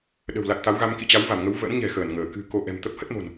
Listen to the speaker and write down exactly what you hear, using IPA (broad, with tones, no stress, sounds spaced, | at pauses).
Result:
ɗ ə̤˨˩ w l a˨˩ t̚ t̪ a˨˦ w ɣ a˧ m k ḭ˧˨ t͡ɕ a˨˦ w v a˧˩ m ŋ ə˨˦ w v ə̰˧˥ n ɲ ɛ̤˨˩ x əː˧˩ n ŋ əː˧˩ k ɨ̤˨˩ k o˨˦ ʔ ɛ̤˨˩ m t̪ ə˦˥ p̚ h ə˦˥ t̚ m o̤˨˩ n